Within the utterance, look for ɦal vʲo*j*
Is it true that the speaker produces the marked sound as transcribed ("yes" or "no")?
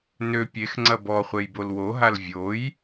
yes